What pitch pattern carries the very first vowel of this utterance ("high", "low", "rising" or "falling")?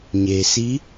low